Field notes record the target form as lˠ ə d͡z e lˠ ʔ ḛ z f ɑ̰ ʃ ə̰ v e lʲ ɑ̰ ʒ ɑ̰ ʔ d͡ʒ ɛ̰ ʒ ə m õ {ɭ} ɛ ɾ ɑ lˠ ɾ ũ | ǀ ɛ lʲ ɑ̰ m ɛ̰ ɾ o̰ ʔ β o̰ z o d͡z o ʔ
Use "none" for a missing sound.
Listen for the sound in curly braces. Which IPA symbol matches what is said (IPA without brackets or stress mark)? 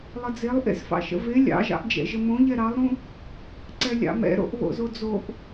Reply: ʎ